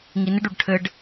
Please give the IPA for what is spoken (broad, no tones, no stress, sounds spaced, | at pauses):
ŋ i n ɪ ɖ u ɖ ʈʰ ɘ ɖ